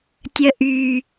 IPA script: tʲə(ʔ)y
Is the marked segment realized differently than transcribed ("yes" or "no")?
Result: no